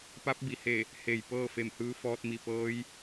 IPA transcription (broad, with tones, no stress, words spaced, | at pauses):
pa˧˥p̚bi˩he˧˩ | he˧˩j pɤː˥˨fe˧˩m hɯː˧˥fɔː˧t̚mi˧˩pɤː˧˥j